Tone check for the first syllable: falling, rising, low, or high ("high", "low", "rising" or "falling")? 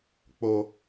low